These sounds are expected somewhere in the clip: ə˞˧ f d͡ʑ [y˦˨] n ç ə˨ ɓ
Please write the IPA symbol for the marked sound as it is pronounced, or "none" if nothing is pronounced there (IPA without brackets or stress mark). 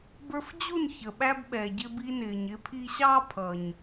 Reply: u˦˨